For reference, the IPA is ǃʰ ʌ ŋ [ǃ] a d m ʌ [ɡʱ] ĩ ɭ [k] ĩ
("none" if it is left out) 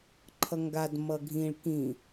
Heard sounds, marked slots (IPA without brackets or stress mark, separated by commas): ɡ, ɡʱ, k